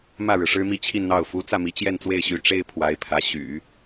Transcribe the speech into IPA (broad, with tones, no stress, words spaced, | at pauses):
mä˥˩ɻɻ̩˩ʂɻ̩˥mi˥˧ t͡ɕʰi˥˧nn̪ɑ˥˩ʊ̯ fu˧˥t͡sä˥˩mi˧˥ t͡ɕjɛ˥˧nt͡swe˥˩ɪ̯ɕy˧˥ ʈ͡ʂe˥ɪ̯pʰwa˧˥ɪ̯pʰä˧˥ ɕy̰˨˩˦